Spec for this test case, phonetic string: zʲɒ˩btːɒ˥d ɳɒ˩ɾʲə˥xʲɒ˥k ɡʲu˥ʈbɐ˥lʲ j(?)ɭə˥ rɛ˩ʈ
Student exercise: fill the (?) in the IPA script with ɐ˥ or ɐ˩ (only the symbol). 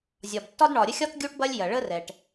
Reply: ɐ˩